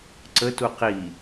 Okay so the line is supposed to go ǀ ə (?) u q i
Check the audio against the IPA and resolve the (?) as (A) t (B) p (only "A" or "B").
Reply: A